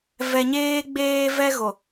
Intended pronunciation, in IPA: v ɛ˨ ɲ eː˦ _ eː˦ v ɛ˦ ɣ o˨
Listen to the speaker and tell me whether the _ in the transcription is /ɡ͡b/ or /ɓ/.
ɡ͡b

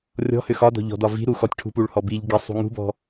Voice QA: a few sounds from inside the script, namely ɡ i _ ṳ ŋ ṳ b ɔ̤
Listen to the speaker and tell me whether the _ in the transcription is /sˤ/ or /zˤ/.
sˤ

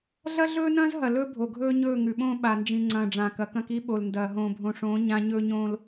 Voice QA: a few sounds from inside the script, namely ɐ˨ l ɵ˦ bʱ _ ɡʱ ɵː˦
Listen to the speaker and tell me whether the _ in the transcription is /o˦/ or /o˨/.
o˨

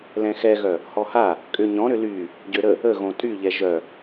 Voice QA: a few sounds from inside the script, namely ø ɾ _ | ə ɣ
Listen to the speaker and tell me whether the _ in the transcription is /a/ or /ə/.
ə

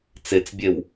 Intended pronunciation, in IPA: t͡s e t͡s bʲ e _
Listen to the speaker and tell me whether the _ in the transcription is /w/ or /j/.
w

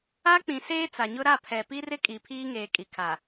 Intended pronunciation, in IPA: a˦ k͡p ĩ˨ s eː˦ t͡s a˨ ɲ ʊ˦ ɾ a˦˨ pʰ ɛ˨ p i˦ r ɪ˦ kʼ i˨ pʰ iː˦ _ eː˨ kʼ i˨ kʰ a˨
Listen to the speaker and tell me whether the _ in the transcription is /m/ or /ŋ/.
ŋ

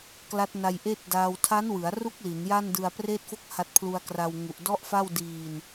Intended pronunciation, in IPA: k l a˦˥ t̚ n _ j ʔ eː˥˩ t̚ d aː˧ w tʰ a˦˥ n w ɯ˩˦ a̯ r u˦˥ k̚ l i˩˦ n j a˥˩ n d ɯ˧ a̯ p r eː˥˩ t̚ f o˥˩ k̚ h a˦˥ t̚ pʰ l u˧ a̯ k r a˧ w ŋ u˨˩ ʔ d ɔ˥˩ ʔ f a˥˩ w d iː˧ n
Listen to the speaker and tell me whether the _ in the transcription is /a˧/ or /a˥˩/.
a˧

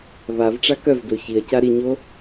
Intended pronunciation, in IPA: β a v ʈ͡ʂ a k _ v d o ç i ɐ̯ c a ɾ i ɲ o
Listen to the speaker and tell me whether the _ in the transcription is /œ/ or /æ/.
œ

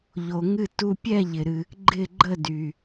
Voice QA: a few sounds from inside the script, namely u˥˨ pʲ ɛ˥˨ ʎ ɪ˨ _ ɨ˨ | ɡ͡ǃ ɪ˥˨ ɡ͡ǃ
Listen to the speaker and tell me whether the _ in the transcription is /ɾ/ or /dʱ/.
ɾ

